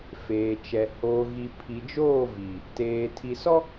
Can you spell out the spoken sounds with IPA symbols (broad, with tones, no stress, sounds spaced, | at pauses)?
f eː˨ t͡ʃ ɛ˨ h oː˨ ɣ i˨ pʰ i˨ d͡ʒ oː˦˨ v i˨ | t eː˨ tʰ i˨ s ɔ˦